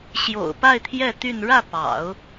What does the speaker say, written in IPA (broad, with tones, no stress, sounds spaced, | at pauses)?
ɕ j o̰˨˩ ʊ̯ p a˥˧ ɪ̯ t̪ʰ j ɛ˥˧ t̪ y˥˧ n ɻ ä˥˩ p ɑ̰˨˩˦ ʊ̯